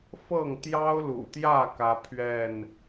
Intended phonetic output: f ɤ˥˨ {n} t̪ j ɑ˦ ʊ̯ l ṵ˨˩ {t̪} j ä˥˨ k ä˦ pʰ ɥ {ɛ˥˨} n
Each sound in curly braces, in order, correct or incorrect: incorrect, correct, correct

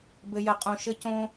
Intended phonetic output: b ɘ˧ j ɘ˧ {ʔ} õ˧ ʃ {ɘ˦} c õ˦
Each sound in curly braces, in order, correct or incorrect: incorrect, correct

